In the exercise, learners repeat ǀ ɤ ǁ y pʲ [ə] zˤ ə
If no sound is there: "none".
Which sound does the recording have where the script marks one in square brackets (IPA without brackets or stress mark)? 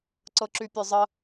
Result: ø